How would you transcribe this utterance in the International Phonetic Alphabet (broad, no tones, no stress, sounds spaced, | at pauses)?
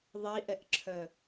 ðˤ i ʔ ɛ ʔ ǁʰ œ